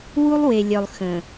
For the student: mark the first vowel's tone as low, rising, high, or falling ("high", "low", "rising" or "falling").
high